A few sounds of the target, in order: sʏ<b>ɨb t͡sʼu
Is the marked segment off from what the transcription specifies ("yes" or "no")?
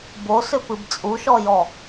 yes